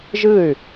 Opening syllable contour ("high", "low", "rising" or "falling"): falling